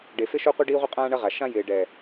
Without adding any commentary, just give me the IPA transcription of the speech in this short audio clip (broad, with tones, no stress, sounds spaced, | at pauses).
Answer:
ɖ e˨ f ɪ˦ ʃ o˦ qʷ i˦ ɖ iː˦ ʁʷ ɪ˦ qʼ ãː˦ ɳ ɐ˦ ʁ a˨ ʃ ã˦ j ɪː˨ ɖ ɛ˨